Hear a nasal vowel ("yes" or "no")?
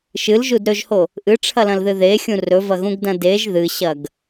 yes